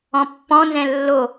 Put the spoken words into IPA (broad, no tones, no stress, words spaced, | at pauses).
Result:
ɔ̃pːɔ̃nzɛ̃ lːo